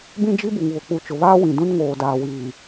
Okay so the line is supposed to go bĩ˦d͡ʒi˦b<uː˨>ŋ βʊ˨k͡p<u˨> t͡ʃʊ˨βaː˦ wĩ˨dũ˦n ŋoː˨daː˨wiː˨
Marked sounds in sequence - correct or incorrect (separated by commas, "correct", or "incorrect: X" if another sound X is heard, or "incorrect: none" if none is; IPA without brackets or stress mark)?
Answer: incorrect: u˨, correct